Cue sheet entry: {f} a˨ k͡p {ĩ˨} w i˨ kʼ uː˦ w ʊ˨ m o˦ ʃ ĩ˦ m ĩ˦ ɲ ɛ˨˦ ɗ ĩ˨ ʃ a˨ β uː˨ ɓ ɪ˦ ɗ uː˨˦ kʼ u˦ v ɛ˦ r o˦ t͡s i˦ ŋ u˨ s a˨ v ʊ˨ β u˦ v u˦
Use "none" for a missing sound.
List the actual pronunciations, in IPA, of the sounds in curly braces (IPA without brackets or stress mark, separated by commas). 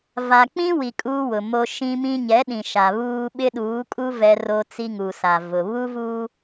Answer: v, ĩ˦